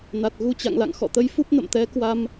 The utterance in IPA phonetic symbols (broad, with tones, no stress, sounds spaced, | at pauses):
n a˨˩ t̚ ɣ u˧ t͡ɕ a̰˧˨ ŋ l a̰˧˨ ŋ x ɔ̰˧˨ t̪ ə˨˦ j f u˦˥ p̚ n ə̰˧˨ m t̪ ɛ˨˦ k w a˧ m